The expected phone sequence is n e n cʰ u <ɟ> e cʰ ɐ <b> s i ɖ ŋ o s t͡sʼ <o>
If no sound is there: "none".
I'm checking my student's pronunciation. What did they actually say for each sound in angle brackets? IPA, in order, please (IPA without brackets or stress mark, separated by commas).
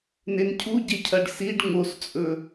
ɟ, ɖ, ɵ